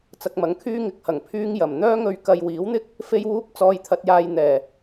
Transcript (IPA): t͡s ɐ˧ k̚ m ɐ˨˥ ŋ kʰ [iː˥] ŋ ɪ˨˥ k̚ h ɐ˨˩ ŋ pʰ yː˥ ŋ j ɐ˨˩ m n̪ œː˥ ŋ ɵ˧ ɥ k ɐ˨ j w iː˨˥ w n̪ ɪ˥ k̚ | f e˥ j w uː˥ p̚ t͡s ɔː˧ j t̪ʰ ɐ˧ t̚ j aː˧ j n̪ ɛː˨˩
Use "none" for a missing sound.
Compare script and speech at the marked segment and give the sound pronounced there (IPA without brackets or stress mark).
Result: yː˥